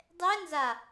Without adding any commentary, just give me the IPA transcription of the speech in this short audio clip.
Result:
dˤ ɛ n z a

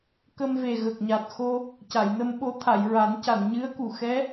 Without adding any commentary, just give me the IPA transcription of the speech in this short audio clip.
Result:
k ə˧ m v e˨˩ ɣ ə˨˩ k̚ ɲ a˨˩ t̚ x o˧ | c a˨˩˨ j n ə˧ m ɓ o˧˥ t̪ʰ a˨˩˨ j ɹ a˨˩˦ n c a˨˩˨ n ɲ ɨ˧˥ ə̯ k u˨˩ x ɛ˧˥

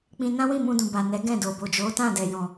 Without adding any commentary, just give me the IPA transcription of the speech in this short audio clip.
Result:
k͡p ĩ˧ n ã˦ w ĩ˦˨ m ũ˧ d ũ˨ b a˨ n ɛ˨˦ ɡ ɛ̃˦˨ d o˨ b o˨ d͡ʒ o˨˦ t ã˦˨ d ɛ˨ j ɔ̃˨

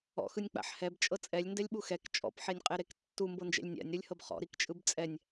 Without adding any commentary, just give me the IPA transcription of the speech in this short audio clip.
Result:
ɔ̰ x ɯ nʲ k͡p a̰ ħ h ɛ b t͡ʃʼ ɤ t͡sʼ ɛ lʲ n d ɛ lʲ ɓ u x ɛ k t͡ʃʼ ɔ̰ p ħ e nʲ qʼ e ɾ e k tː u m b ɤ n d͡ʒ ɛ̰ lʲ nʲ a̰ nʲ ɾ u lʲ h ɤ b χ ɔ̰ ɾ i k t͡ʃʼ ɯ b t͡sʼ ɛ nʲ

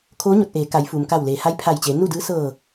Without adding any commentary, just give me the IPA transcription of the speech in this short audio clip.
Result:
kʰ oː˧˥ ɲ o˧˩ t̚ ʔ eː˩˧ k a˩˧ j f uː˩ m k a˧˩ w l eː˩ h a˧˥ j pʰ a˧˩ j t͡ɕ eː˩˧ n u˥˨ d ɯː˧˥ s ɤː˧˩

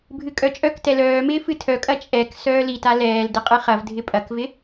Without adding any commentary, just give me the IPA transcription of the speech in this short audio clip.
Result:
bʱ ɨ kʼ œ t͡ʃʼ œ k t ɛ l œː m ɪː f ɨ tʰ œ kʼ ɐ t͡ʃʼ ɛ k s œː l i t a l ɛː l d ɪ qʼ ɨ χ ɐ v dʱ ɪ pʼ ɐ k v ɪ

